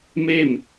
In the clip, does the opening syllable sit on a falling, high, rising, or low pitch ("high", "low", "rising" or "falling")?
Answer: falling